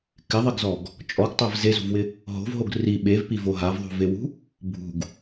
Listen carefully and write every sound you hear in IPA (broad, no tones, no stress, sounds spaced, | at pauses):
k ɪ ðˤ ɪ ɡ z ɔ ɡ | t͡ʃʼ ɔ ɡ tˤ a v z e z ṳ v w ɪ | ɦ o̤ v ɦ o ɡ r i ɓ e v p i v o ɦ a v ðˤ ṳ v e w ṳ | bʱ ṳ ɡ